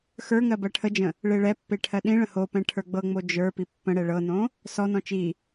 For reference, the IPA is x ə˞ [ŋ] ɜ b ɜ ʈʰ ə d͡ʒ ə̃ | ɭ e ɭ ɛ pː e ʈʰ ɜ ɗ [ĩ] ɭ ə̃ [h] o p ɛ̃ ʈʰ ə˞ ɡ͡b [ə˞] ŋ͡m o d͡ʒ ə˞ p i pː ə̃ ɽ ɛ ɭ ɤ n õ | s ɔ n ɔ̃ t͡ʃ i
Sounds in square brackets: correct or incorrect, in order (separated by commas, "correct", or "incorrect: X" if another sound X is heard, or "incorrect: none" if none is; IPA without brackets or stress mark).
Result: correct, correct, correct, incorrect: ɤ